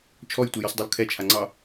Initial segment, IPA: t͡ʃʰ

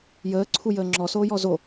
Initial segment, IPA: j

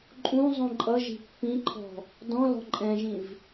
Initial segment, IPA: ǃʼ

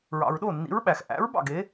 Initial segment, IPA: ɹ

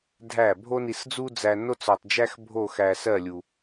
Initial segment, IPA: dʱ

